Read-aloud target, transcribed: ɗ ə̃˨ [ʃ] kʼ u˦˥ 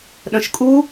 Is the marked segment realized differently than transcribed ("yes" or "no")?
no